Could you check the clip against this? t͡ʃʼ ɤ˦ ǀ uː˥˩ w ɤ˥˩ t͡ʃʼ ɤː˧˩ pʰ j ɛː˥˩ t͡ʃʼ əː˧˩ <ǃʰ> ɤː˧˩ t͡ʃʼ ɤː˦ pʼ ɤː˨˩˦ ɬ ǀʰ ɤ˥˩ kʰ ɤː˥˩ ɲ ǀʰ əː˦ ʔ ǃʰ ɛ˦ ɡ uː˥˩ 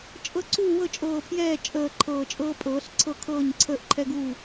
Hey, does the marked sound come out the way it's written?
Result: yes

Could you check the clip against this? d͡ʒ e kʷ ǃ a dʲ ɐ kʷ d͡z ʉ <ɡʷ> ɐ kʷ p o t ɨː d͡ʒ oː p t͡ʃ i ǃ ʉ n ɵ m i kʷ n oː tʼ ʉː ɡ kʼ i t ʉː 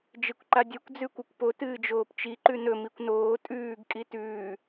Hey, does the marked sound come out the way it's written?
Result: no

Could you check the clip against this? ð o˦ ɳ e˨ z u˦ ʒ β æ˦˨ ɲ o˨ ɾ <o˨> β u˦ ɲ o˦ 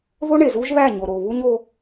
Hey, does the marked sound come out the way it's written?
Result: yes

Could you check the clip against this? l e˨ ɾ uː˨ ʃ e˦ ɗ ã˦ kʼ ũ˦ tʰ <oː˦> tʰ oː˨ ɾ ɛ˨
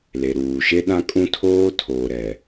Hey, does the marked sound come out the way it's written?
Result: yes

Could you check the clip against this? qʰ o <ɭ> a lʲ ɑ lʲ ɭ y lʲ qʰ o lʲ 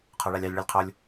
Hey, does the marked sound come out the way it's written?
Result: yes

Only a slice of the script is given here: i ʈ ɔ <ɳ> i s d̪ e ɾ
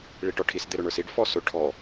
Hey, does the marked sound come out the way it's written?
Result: no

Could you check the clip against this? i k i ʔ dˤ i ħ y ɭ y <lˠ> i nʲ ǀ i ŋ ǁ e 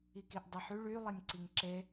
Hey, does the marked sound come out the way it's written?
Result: yes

